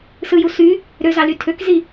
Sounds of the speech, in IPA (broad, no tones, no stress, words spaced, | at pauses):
sɯju sy | ɾøzɑly tʰøkzi